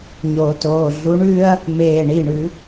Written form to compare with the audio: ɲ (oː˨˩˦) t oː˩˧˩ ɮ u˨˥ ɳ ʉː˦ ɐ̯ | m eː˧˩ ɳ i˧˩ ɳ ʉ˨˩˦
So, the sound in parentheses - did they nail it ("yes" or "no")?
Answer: yes